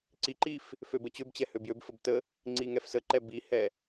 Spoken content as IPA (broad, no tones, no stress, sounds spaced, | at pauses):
ǀ i ǃ i f | f ø b ə t͡ɕ ø b t͡ɕ ɛ h ø b j ø b f ə b t ə | ŋ͡ǀ i ŋ ɛ f s ə ǃ ɛ b i h ɛ